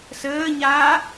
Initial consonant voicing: voiceless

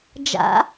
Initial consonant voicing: voiced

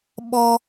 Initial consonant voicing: voiced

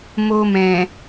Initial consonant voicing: voiced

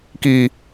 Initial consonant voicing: voiceless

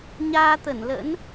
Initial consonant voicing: voiced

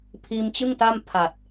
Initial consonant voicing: voiceless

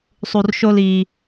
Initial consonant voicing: voiceless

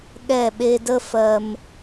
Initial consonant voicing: voiced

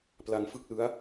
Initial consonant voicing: voiceless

